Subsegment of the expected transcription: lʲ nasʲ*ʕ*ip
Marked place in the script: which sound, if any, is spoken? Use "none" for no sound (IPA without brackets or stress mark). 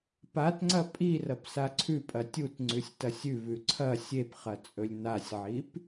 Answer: ʕ